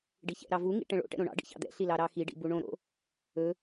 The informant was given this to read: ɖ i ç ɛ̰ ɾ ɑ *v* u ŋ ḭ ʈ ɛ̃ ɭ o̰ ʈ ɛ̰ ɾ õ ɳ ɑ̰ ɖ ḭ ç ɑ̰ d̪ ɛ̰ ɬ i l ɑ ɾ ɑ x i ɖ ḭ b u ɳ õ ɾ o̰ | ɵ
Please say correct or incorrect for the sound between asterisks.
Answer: correct